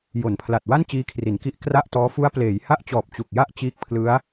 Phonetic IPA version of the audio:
j o˩˦ n pʰ l a˨˩ t̚ w a˥˩ n t͡ɕ iː˦˥ kʰ r i˩˦ n k i˦˥ ʔ k r a˥˩ ʔ t ɔː˦˥ f u˦˥ a̯ p l eː˩˦ j h a˥˩ ʔ t͡ɕ ɔː˨˩ p̚ t͡ɕ u˨˩ k̚ j a˥˩ ʔ t͡ɕ iː˦˥ k̚ pʰ l ɯ˦˥ a̯

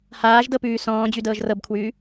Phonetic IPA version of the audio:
h aː ʒ d ɤ p ʉː s ɔ̃ː d͡ʑ ʉ d ɤː ʒ r ɤ b kʰ w ʉː

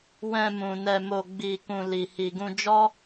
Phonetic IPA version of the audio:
w ɛ̃˧ m ũ˨ n ɛ˧ m o˧ ɡ͡b i˧ k ũ˧ l i˨ h i˨ ɡ ũ˧ d͡ʒ ɔ˦

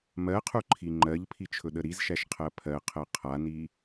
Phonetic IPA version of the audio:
m ɜ qʰ u ǃʰ i ŋ͡ǃ ɜ ʎ pʰ i t͡ʃʰ ɵ ɗ ə ɾ i z ʃ æ ʃ qʰ ɜ pʰ ɜ qʰ ɜ qʰ a n i

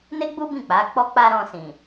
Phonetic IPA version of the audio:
n e˦ ɡ͡b u˦ b ĩ˦˨ k͡p a˨˦ k͡p ɔ˦ k͡p a˦ ɾ ɔ̃˧ s ĩ˨

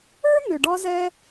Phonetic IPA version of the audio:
ə˞˥ n̪ ʏ˨ ɖ ɒ˦ z ɛ˦

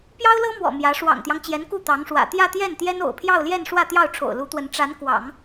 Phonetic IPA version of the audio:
p j ɑ˥ ʊ̯ l ɤ˥ m w ɔ̰˨˩ m j ä˧˥ ʂ w ɑ̰˨˩ ŋ t̪ j ɑ˦ ŋ t͡ɕ j ɛ˧˥ n k u˥˩ t̪ ɑ˧˥ ŋ ʂ w ä̰˨˩ t̪ j ä˥˧ t̪ j ɛ˥˩ n t̪ j ɛ˥ n o̰˨˩ ʊ̯ pʰ j ɑ˥˧ ʊ̯ l j ɛ˥˧ n ʂ w ä˥˧ t̪ j ɑ˥˩ ʊ̯ ʈ͡ʂʰ o̰˨˩ ʊ̯ l u˧˥ t̪ w ə˧˥ n ʈ͡ʂ a˧˥ n k w ɑ̰˨˩˦ ŋ

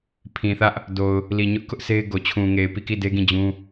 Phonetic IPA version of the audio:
pʰ ĩ˨ θ ä˦ ʔ | d o˨ ʊ̯ | l i˨ ɲ ʊ˦ ʔ k ʊ˦ ʔ s e˦ ɪ̯ ɡ o˨ t͡ɕʰ ũ˨ ŋ e˨ ɪ̯ p i˦˨ k i˦˨ d e˦ ɡ ĩ˦˨ d͡ʑ ũ˦

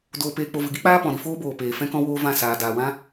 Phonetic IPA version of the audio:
d oː˧ p eː˧ k͡p o˧ v ɨ˨ ɡ i˦ k͡p aː˦ p ɔ̃˨ ɾ i˧ f oː˦ b oː˨ p eː˨ f ɛ̃˦ k ɔ̃˦ w oː˦ v ã˦˨ s aː˨ d aː˨ w ã˦

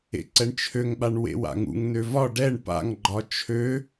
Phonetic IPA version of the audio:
ḛ ǀ ɛ ɳ t͡ʃʰ ø ŋ ɓ a ɳ w ḛ w a̰ ŋ ṵ ŋ n ø v ɒ ɖ ɛ ɳ p a̰ ŋ ɡ͡ǃ ɒ t͡ʃʰ ø

